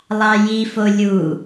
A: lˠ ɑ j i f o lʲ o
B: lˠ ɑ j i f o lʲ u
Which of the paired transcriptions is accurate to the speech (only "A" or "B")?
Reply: B